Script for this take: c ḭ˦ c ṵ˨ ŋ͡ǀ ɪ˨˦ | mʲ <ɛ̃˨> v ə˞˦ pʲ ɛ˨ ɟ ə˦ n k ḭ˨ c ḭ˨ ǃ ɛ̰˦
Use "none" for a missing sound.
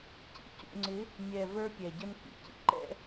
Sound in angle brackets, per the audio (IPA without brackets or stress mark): ɛ˨